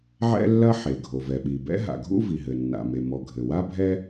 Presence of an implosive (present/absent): present